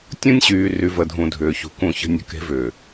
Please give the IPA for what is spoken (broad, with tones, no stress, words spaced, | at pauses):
tʲũ˦nʲɕyː˨ry˨ və˨dʱũ˨ dʱʏː˨çṳ˨ kũ˨ çə̤˨nʲə̤˨ ke̤˦vʏː˨